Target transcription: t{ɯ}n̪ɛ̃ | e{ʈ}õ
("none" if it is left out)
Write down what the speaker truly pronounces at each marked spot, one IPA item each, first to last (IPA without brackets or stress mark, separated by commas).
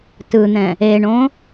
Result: ɯ, ɳ